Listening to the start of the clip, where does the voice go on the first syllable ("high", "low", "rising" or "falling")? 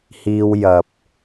high